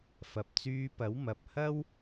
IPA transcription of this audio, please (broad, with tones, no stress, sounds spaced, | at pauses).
f ɐ˨ p̚ t͡s yː˧ p ɐ˨˥ w m ɐ˨ p̚ h ɐ˥ w